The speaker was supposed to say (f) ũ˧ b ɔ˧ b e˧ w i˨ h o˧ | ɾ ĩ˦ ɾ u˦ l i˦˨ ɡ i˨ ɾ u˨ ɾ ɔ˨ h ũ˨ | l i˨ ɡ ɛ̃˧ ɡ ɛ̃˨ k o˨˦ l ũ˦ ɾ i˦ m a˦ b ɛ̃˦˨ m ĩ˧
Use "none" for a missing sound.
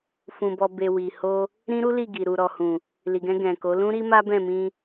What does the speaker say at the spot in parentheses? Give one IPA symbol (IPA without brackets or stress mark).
f